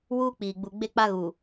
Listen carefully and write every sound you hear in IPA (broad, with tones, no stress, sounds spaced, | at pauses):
w uː˦ k͡p iː˨ ɡ͡b u˨ ɡ͡b e˦ k͡p a˦ ɣ uː˨